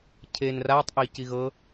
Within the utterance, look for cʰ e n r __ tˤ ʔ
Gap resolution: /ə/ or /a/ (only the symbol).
a